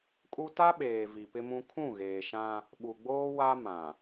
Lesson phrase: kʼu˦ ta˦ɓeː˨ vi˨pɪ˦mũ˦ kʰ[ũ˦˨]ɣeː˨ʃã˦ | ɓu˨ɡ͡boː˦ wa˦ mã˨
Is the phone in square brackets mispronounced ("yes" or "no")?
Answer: no